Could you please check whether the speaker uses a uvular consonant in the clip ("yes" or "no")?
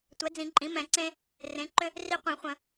yes